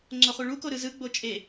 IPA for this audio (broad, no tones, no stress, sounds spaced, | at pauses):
ŋ͡ǀ o χ u ɭ u k o ɾ ɯ z ɯ ɡ͡b o t͡ʃʼ e